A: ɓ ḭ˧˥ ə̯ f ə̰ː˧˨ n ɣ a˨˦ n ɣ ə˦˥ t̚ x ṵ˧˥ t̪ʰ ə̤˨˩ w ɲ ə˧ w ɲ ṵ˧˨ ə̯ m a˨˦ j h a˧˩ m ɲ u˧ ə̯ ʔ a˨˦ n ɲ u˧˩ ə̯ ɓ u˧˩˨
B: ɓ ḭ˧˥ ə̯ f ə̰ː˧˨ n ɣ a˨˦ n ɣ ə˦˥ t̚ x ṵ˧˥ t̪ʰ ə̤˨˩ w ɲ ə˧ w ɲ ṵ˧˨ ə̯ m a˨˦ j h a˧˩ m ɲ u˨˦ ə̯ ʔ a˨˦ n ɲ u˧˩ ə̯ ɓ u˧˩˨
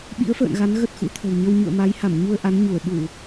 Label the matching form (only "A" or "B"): A